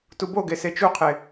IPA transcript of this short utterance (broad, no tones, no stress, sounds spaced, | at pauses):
t u b o ɡ e s e t͡ʃ u qʰ e